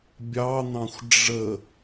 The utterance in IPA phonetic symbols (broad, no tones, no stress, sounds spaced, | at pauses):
bʲ ɑ n̪ ɑ̃ xʷ ɖ͡ʐ ə